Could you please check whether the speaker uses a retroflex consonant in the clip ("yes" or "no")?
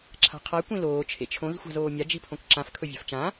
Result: no